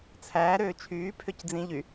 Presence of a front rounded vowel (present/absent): present